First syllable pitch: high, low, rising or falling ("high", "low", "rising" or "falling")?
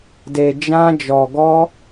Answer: low